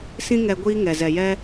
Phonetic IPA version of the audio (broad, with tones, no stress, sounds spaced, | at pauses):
s ĩ˦ ŋ ɛ˧ ɡʷ iː˦ ŋ ɛ˨ z ɛ˨ j ɛ˦